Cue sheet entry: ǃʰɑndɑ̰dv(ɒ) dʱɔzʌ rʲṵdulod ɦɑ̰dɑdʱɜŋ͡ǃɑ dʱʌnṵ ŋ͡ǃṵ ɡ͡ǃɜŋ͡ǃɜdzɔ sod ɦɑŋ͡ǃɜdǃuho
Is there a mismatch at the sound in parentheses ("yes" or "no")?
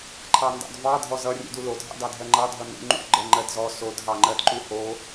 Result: yes